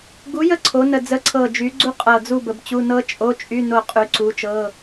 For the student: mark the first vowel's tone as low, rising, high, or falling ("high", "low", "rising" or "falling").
rising